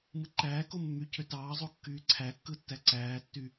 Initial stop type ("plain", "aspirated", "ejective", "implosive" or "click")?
click